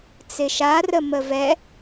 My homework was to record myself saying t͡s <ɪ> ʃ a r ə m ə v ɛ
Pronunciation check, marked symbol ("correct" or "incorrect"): correct